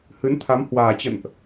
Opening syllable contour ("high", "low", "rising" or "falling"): rising